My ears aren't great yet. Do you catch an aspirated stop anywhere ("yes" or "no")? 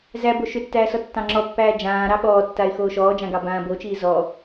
no